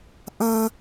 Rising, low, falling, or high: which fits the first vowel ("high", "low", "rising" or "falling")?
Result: high